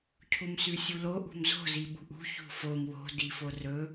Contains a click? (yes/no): no